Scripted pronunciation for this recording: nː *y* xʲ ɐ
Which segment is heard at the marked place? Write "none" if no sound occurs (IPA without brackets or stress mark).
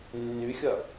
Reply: y